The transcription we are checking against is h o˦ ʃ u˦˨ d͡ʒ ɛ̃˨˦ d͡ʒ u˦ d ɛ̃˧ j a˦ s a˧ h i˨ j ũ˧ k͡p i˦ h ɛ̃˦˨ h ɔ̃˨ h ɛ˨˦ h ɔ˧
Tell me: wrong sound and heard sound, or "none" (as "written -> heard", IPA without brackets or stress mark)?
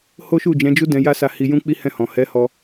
none